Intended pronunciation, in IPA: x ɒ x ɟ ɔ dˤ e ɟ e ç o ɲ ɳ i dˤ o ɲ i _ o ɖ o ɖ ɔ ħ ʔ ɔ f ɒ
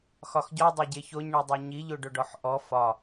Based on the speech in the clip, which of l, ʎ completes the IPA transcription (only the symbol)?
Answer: ʎ